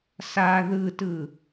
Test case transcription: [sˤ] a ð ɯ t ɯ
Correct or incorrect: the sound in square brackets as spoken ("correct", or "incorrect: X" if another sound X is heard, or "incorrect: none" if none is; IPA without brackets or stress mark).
incorrect: s